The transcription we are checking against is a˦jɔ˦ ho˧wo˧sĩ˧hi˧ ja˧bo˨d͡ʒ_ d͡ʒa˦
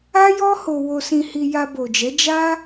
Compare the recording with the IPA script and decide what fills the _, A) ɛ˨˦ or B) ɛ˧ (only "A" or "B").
A